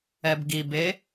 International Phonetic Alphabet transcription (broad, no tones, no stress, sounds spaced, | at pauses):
ɛ b ɡ i b e